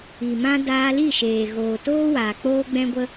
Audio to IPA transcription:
i˨ m ã˦ d aː˧ l i˦˨ ʃ eː˨ ɣ oː˨ t oː˦ w aː˨ k͡p oː˦ ɡ͡b ɛ̃˦ ɡʷ ə˦

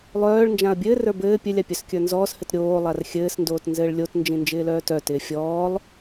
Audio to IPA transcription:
lˠ œː ɭ n d͡ʒ ã ɐ̯ bʲ ɘː r ə˞ b ɘː pʲ ɘ lʲ a pʲ œ s kʲ ə˞ n z ɔː s h ɘ t ɾʲ oː lˠ a r xʲ ɘː s n d oː t n z ɘː ɭ lʲ o t n d͡ʒ ĩ n d͡ʒ ɪː l œː t œ t ɪː fʲ ɔː lˠ

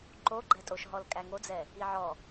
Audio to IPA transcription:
ǃ o ɡ͡ǃ ɛ tʼ o ʃ ɦ ɔ l kʼ æ ŋ o d͡z ɛ | i ʕ ɔ

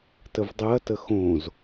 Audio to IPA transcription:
t ə v dˤ ɯ ɐ̯ t ə x õ z

